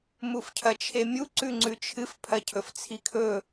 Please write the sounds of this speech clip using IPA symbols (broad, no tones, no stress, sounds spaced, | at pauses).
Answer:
m u f cʰ ɐ t͡ʃʰ e mʲ u ǀ ʉ ŋ͡ǀ ʉ t͡ʃʰ ɨ f pʰ ɐ cʰ ɵ f t͡sʰ i kʰ ɵ